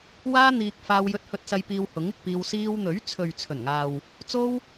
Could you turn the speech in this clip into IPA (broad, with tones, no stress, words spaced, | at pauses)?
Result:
waː˥n̪iː˧k̚ faː˧wjɵ˧t̚hɵ˧t̚sɐ˧j piː˧whʊ˨˥ŋɪ˧k̚piː˧w siː˧wn̪ɵ˨˥ɥt͡sʰɵ˨ɥ t͡sʰɵ˨˩nŋaː˨w | t͡so˥w